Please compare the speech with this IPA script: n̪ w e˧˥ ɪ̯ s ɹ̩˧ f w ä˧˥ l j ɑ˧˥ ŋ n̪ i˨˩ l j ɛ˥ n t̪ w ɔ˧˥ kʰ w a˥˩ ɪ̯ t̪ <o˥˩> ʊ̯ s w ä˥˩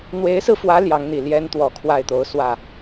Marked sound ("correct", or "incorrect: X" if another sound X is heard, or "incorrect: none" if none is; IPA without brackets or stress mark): incorrect: o˧˥